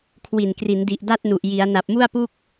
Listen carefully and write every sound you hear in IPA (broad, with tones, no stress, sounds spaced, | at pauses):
kʰ w i˨˩ n k r i˩˦ n d i˨˩ ʔ d a˥˩ t̚ n u˨˩ ʔ j i˩˦ a̯ n a˨˩ p̚ m u˥˩ a̯ p u˥˩ k̚